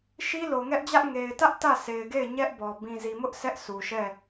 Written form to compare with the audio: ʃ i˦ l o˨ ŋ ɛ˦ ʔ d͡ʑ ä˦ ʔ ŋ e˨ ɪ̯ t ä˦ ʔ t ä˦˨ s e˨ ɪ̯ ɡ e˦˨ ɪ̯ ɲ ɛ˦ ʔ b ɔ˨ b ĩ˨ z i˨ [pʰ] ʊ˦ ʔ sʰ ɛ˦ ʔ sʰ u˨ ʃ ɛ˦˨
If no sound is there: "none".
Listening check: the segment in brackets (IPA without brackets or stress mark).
m